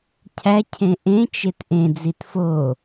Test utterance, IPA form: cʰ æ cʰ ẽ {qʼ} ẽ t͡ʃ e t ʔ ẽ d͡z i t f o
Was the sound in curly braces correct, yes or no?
no